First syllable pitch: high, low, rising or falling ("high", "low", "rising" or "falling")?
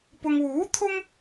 low